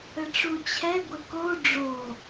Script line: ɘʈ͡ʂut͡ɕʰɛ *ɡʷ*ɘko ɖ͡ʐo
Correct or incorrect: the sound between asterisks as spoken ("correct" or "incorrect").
correct